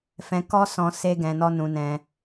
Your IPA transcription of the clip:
fɛ̃˧kɔ˦ sɔ̃˧ se˦ɡɛ̃˧nɔ˦ nũ˧nɛ̃˧

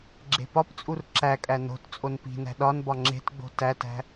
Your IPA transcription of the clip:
ɡ͡ǁe̤pɒpt͡sʼur ǁækʼæ no̤t t͡sʼonpi̤næ̤ ɗɒn bɒŋ͡ǁe̤tɡ͡bo̤ tætæ̤

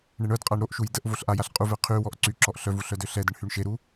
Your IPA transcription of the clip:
ɳeɳœdqʼaɳ ɾoʔʃuj dəʔ voɬʔajaɬ qʼuvɛ qʰywɔʔ ǀyǁɔʔ ɬœvu ɬœdøɬɛdəɳ hyɳʃeɾu

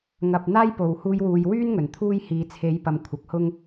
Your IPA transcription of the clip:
ŋɐ˨p̚n̪aː˥jpo˨˩w huː˧jwuː˨j wyː˥n ŋɵ˨˩nt̪ʰuː˥j hiː˨t͡sʰe˨˥jpɐ˨m kʷʰɐ˨˥k̚hʊ˥ŋ

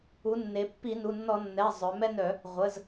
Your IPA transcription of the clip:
u˩˥nːe˩˧ pːi˧˩˧nu˩˧˩nːɔ˧˩˧ nːɛ˩˧˩ zˤœ˩˧mɛ˦nœ˧˩˧ | ʁʷə˩˧˩z

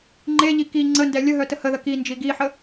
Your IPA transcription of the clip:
ŋ͡ǃeʎi ki ŋ͡ǀəndɛ lʲəɦœ təhəðə kind͡ʒi ɡiħə

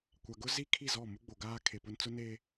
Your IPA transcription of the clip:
kʷa˨ɡʊ˦ zi˦kʰi˦˨ zɔ˦˨mu˦ɡ͡bo˨ ɡaː˦ kʰe˨pʊ˦n t͡sʊ˦ne˦

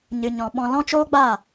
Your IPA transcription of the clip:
ɲɨ˨ɲɔ̃˨ɓɔ̃˧ lɔ̃˦t͡ʃoː˦ɡ͡baː˦˨

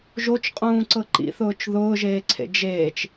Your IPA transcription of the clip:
ʒot͡ʃqʼũːǀɤ ǃḭθʊːt͡ʃ ðʊːʒeːǀʰḛ d͡ʒeːt͡ʃ

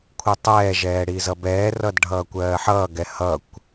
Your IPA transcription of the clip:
kʷʰɯtˤɛːʒɛː ɽizʌbɛːrʌd ɖʱʌːkʷɜːħʌːɡɛ hʌkʷ

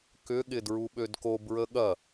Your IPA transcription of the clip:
kʏɠɪ dɹuɓødko bɹəɠɐ

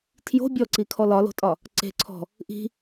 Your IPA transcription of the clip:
tʰjo̤ bʲɔǀikʰɔ lɒlo̤tʼɒ | ǀe̤ǀʰɔ̤ | ʔi̤

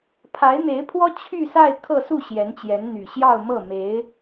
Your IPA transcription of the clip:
pʰa˧˥ɪ̯n̪e˧˥ɪ̯pʰwɔ˥ t͡ɕʰy˥˧sa˥˧ɪ̯ kʰɤ˥˧su˥˩ ɕjɛ˧˥nt͡ɕjɛ˧˥nn̪y˨˩ ɕjɑ˥˧ʊ̯mɤ˥˩me˧˥ɪ̯

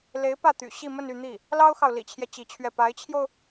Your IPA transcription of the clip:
le˧˥ɪ̯pä˥˩t̪y̰˨˩ ɕi˥˧mə˥˧ny˥˧ n̪i˥˩ | lɑ˥ʊ̯xɑ˨ʊ̯ lḭ˨˩t͡ɕʰjɛ˦ t͡ɕi˧˥t͡ɕʰɥɛ˥˩ pa˧˥ɪ̯t͡ɕʰjo˧ʊ̯

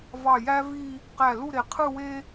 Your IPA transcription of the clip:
vɑ˧˩jæ˥vi˥˧ | qæ˧˩ lu˥˧ɾe˩˧ qʰɯ˥˧we˥

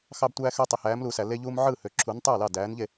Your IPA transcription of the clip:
xɑ˦btʷæː˦xø˦ tˤe˨hæː˨˥mluː˨sæ˨ le˦ʎuː˦mʕɯː˥˩hø˨ ǁʰu˨˥ntˤɯː˥˩lɑ˥˩ dæː˨˥nʎe˥˩

